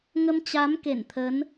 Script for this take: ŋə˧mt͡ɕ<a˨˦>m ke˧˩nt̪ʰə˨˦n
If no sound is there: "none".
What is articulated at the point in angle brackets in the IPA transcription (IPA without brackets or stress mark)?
a˨˦